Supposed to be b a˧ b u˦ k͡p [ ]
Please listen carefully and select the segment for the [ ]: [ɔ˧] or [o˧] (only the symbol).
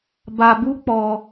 ɔ˧